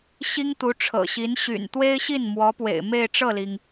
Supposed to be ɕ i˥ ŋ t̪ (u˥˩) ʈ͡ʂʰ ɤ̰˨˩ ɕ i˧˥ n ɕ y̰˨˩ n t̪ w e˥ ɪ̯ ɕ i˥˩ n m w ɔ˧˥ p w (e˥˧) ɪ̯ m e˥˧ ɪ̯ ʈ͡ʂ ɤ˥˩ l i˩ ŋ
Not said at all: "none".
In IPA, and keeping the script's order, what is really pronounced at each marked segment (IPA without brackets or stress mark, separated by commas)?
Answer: u˧˥, ḛ˨˩